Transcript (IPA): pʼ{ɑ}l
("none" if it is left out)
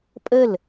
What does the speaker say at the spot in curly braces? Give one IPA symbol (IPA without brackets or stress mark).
ə